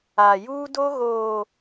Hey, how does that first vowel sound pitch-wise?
low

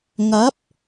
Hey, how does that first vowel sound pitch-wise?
rising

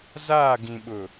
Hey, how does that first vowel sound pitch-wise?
falling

